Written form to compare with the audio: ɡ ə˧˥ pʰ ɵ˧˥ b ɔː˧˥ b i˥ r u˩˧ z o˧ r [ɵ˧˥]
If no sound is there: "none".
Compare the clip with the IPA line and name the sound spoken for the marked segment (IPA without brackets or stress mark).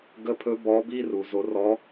ɔ˧˥